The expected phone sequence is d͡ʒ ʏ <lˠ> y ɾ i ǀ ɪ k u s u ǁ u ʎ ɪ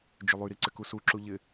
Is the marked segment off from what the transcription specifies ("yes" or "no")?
no